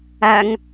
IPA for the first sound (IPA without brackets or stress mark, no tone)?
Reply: æ